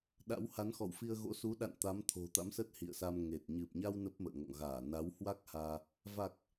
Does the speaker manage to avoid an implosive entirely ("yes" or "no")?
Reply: no